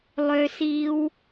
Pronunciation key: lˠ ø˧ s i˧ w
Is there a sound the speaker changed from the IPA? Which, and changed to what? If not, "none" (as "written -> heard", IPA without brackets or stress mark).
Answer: none